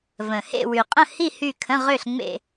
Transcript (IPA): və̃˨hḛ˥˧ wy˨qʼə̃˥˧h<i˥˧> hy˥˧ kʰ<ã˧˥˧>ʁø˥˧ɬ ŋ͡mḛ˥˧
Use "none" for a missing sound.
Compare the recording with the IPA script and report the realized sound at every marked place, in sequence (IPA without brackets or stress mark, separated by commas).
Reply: i˥˧, ə̃˧˥˧